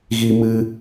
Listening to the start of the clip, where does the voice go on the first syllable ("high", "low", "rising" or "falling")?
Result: high